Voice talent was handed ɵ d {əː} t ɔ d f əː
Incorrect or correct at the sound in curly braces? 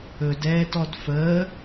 incorrect: ɛː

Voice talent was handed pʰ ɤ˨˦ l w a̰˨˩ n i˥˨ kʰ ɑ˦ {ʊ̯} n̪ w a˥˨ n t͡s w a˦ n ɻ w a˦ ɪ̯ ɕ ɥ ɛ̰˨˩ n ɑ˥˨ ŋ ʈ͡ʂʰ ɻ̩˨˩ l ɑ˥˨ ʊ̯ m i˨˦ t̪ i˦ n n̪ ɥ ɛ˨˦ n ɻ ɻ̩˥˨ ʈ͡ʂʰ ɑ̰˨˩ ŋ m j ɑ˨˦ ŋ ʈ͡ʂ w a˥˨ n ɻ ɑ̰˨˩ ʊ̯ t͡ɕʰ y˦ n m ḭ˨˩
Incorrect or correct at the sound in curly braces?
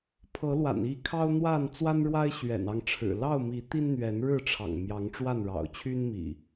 correct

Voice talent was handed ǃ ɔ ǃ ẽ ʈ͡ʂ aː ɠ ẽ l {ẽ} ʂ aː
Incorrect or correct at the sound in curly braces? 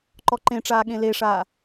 incorrect: e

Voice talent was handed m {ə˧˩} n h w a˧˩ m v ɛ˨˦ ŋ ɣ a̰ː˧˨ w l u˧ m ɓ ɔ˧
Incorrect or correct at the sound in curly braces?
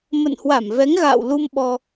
incorrect: ə̰˧˨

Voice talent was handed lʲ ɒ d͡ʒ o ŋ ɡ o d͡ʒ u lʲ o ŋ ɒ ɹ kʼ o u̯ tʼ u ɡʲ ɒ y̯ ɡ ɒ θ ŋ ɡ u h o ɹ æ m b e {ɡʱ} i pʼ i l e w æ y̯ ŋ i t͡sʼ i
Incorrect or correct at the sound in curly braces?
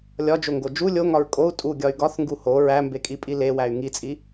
incorrect: kʼ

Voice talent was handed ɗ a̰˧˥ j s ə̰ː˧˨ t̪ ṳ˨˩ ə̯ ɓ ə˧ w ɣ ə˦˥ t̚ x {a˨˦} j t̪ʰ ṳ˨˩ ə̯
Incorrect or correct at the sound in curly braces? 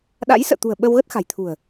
incorrect: a̤˨˩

